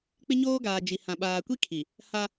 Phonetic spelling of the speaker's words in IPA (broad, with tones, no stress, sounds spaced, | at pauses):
k͡p ɪ˦ ɲ oː˦ ɡ aː˨ d͡ʒ i˨ h ã˨ ɓ aː˨ kʷ i˦ kʰ i˨ | h a˦